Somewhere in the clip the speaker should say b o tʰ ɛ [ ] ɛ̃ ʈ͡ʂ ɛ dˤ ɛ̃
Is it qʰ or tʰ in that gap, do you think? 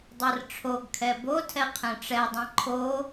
qʰ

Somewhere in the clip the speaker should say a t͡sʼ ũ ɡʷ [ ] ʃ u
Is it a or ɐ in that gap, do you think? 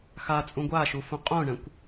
a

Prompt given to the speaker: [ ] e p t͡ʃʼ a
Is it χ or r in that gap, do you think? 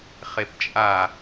χ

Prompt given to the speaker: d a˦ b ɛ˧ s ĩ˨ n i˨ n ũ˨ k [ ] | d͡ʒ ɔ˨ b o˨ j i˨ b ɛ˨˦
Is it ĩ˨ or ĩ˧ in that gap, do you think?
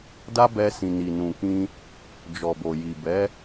ĩ˧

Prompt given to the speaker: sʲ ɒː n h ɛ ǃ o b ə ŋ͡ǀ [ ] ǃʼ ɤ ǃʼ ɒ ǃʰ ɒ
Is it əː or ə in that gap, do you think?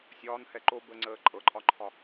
əː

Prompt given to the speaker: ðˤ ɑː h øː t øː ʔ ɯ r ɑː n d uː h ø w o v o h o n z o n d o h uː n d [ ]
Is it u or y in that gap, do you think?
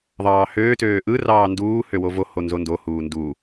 u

